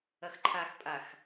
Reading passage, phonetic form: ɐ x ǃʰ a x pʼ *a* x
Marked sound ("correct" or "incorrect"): correct